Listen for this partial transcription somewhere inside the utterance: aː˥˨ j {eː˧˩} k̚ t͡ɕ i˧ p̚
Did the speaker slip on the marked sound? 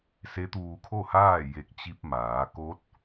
yes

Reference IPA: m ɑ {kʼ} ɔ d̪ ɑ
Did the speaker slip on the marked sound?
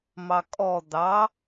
no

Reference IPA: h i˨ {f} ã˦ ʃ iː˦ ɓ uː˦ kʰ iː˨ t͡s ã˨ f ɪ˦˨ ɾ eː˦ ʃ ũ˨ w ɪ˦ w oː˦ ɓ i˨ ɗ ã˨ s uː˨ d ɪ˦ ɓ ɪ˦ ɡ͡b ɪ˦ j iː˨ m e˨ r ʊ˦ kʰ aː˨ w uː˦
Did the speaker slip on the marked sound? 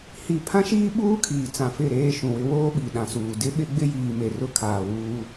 yes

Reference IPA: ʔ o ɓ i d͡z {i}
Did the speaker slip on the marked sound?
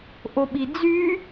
yes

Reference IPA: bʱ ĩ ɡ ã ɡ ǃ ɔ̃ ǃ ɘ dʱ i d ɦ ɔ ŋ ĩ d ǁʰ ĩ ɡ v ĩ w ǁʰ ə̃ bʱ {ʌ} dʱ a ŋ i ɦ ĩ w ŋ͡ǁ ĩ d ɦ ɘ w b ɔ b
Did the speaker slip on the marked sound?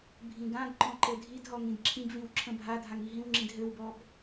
yes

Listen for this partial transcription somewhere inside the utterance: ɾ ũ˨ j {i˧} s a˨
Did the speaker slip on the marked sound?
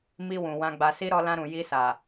no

